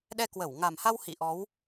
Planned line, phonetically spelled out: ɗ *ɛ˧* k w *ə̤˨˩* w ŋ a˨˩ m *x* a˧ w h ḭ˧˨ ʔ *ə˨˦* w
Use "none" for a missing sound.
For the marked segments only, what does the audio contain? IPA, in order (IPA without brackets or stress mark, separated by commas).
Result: ɛ˧, ə˧˩, h, ɔ˨˦